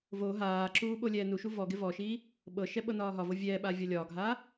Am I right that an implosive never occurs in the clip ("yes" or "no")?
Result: no